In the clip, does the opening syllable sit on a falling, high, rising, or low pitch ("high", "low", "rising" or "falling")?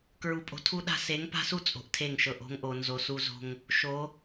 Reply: low